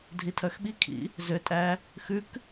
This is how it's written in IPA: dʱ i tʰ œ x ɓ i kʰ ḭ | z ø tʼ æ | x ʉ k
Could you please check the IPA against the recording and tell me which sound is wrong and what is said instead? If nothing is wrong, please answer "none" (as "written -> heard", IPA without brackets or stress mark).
none